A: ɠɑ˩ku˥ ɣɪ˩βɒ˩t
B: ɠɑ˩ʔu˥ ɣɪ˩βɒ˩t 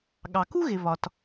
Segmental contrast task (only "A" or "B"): A